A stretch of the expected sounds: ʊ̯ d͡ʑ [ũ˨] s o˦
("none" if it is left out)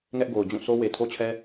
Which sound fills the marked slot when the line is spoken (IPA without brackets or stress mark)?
ũ˦˨